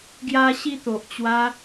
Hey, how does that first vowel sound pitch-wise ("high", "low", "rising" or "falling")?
high